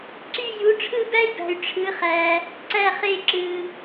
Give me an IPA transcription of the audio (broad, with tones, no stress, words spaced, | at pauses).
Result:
ǀy˥˧ ju˨˦ʈ͡ʂʰɯ˥˧bæ˥i̯bæ̤˨y̯ ʈ͡ʂʰɯ˨˦χæ˨ | ǀæ˥˧χe˥˧ ǁɯ˨